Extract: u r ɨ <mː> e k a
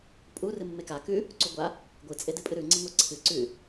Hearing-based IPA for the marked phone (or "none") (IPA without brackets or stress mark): mː